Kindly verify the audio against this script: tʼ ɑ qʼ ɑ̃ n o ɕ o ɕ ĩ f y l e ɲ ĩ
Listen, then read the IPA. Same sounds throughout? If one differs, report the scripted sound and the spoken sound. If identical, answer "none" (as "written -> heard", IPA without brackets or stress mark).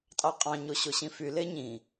n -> ɲ